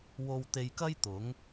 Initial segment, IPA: w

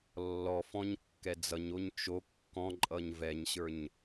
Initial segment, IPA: lː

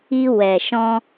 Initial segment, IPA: i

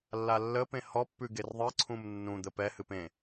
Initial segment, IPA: lː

